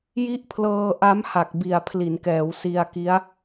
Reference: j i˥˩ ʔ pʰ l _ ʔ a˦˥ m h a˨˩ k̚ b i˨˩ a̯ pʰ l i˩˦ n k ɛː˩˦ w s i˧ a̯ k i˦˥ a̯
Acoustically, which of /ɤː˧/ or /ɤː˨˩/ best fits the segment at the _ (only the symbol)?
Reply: ɤː˧